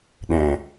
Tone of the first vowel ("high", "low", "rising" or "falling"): low